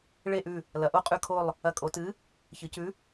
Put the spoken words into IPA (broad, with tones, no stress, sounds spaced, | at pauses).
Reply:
ɭ e˦˨ ʔ ʉ˦˨ | l ɐ˩˧ ʔ o˦˨ qʼ ʉ˦˨ kʰ o˦˨ lˠ | ɐ˧˩˧ kʼ o˩˧ t ɨ˨˥ | ç ɨ˩˧ c ʉ˨˥